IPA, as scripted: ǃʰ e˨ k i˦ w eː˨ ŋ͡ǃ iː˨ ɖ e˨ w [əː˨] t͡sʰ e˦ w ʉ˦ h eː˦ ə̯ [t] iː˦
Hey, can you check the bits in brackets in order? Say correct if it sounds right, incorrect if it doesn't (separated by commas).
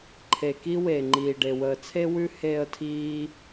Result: correct, incorrect